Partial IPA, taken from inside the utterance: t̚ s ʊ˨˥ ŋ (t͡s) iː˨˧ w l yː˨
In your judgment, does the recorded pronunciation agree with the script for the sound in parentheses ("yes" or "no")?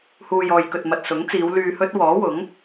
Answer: yes